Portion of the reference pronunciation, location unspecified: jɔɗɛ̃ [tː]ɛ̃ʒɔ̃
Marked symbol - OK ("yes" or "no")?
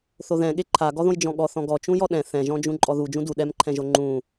no